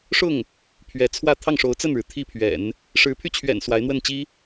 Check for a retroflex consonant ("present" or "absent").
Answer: present